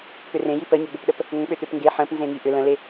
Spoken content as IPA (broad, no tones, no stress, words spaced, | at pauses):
pʏrẽji pəɲʏɡ͡bʏpɗəp | ŋə̃k͡pʏt̪ʏp ŋɡe ħə̃p nzẽŋiʔʏ lə̃le